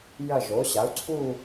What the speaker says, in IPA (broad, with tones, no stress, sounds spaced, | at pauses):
j ɐ˥˧ ʒ o˨˥ ɕ a˨˥ u̯ ǀʰ u˥˧